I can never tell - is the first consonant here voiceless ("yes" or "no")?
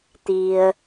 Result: yes